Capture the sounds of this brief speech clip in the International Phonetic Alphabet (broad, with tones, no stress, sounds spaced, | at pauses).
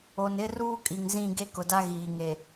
o˨ n ɪ˦ r uː˦ kʼ i˨ ŋ z ĩ˦˨ ɡ e˦ k ʊ˨ d a˦ ɣ iː˨ ŋ e˨